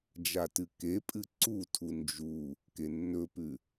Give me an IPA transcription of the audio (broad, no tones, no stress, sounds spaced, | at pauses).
d͡ʒ a t ɨ k e pʼ ɨ ǀ u tʰ u n d͡ʒ u | k e nː ɵ p ʉ